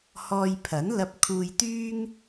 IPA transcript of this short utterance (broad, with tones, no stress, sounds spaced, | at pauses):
h ɔː˧ j pʰ ɐ˨˥ n l ɐ˧ p̚ kʰ uː˧ j t̪ yː˥ ŋ